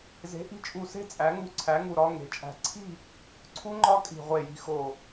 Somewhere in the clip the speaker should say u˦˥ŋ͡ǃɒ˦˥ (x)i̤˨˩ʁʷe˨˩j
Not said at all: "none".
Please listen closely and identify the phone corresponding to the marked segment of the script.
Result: kʼ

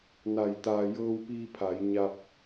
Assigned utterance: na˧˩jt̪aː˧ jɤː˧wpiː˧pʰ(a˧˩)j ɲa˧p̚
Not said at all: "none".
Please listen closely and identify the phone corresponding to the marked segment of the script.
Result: a˩˧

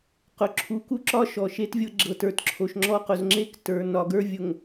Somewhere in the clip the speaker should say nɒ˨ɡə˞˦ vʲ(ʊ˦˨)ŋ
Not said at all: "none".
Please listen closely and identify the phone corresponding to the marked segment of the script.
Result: ʊ˨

